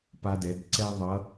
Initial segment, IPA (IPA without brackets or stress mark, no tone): p